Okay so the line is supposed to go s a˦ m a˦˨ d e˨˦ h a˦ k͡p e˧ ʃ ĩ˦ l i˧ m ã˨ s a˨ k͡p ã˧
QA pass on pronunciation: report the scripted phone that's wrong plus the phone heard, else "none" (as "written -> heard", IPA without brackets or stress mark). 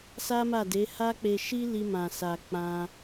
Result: ĩ˦ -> i˦